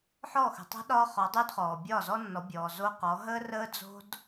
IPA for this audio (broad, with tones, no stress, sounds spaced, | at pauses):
ħ ɔ˦˨ x ə̤˨ tˤ ə̤˦ ɗ ɒ˦ χ ɒ˨˦ dˤ yː˦ d χ ɔː˨ bʲ ɒː˦˨ z ɔ˦ nː ɔ˨˦ bʲ ɔː˨ z o˦ q ɔ˨˦ ɦ əː˦ r əː˦ d͡z o̤˦ d